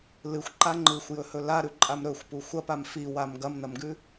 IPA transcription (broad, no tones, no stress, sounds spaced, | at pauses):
l ɨ xʷ ǃ a ŋ͡ǃ ɨ xʷ j ɵ h ɵ l a ɾ ʉ ǃʼ a m ɾ ɵ xʷ p u xʷ ɐ p a m f i w a m ɡ ɐ m n ɐ m ɡ ʉ